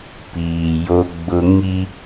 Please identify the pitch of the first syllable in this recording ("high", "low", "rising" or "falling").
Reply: low